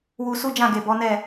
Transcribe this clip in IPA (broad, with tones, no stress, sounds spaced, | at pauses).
w u˧ s u˦ d͡ʒ ã˦˨ ɡ e˨ b ɔ˨˦ n ɛ˦˨